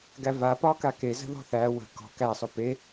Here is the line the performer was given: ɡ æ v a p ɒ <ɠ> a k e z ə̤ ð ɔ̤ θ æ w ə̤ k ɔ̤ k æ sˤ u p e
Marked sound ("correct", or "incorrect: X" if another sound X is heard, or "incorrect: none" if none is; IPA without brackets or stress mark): incorrect: k